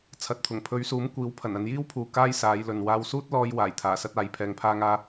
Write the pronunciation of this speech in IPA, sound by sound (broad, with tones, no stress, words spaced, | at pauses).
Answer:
t͡sʰɐ˨˥t̚t̪ʰʊ˨˩ŋ pʰɵ˨˧ɥsuː˨˥mkʷiː˨˥w pʰɐ˨˩nɐ˧n jiː˥wpʰuː˨ kaː˥jsaː˨˧jlɵ˨n waː˧wsuː˥t̚lɔː˧j waː˨˩jt̪ʰaː˨˩sɐ˥t̚aː˨˥j pʰɛː˧ŋpʰaː˥ŋaː˥